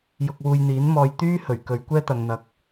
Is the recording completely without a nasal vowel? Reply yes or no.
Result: yes